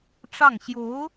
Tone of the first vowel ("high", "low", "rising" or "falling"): falling